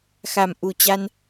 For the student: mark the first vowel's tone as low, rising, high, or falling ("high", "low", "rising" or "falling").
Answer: low